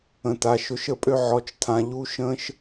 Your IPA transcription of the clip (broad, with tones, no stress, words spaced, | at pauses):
ə̃˨ta˨ʃʊ˧ʃ ə˦˨pʼø˦ ʕɔ˧t͡ʃtʰã˧ ʎu˦ʃə̃ː˦ʃ